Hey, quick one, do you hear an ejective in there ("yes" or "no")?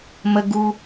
no